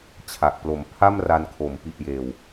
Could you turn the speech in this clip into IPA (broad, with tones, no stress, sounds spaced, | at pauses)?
t͡ɕʰ a˨˩ k̚ p l o˩˦ m pʰ a˥˩ m r a˧ n kʰ o˩˦ m p i˨˩ ʔ j eː˨˩ w